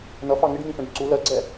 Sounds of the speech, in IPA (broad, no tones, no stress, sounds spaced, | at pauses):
n ʌ f ɑ ŋ ɪ ɖ ŋ ĩ f ɛ̃ ɖ ǀ u l ɜ ɡ͡ǀ ɛ